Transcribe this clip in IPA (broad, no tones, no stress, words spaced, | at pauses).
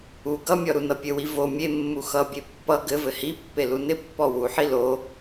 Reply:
u ɡʌmʲɔ ɾunʌpʲɘwi vo mʲe mːuxʌbʲe pːʌ ɡɘ vɘhipːe lunɪpːɔ wuħi lo